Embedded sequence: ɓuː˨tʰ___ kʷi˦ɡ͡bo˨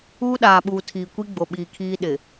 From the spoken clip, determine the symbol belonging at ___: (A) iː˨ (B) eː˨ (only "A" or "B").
A